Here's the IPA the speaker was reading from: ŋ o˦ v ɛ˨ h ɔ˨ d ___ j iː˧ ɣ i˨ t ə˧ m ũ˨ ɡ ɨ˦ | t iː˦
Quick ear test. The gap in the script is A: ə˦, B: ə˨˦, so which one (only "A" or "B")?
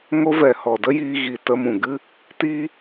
A